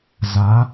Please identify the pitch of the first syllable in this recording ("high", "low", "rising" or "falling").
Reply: rising